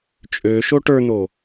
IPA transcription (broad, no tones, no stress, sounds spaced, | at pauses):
t͡ʃʼ ø ʃ o ʈ ə˞ n̪ o